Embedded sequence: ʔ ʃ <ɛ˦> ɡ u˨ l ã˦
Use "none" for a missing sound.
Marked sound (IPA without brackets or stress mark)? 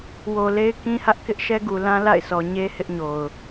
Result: ɛ˦